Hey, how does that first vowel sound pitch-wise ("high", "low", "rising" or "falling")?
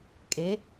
rising